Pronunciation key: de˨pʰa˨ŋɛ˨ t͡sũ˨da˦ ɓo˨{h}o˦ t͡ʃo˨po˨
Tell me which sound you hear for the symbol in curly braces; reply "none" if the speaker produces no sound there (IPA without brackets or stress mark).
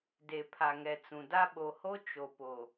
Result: h